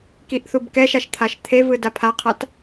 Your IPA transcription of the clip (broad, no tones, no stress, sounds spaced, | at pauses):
k i ʔ θ u b k ɛ ʃ a ʃ t̪ʰ a ʃ t̪ʰ e v ɯ d a pʰ a qʰ a t